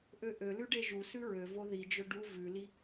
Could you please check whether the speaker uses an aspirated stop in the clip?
no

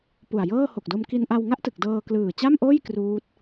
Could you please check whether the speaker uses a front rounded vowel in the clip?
no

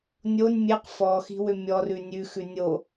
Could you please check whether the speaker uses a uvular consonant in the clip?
yes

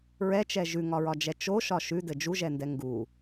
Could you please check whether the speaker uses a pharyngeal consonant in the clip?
no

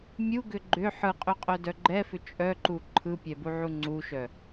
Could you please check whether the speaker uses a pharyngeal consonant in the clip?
yes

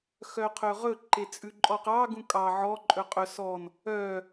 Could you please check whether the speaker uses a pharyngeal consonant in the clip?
yes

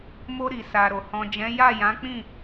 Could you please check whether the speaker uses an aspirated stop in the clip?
no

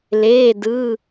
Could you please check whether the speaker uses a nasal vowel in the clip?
no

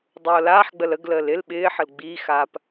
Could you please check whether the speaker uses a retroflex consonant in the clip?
no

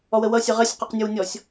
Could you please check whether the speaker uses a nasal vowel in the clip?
no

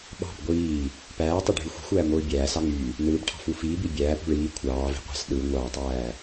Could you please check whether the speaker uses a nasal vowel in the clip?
no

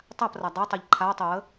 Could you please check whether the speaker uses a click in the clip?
yes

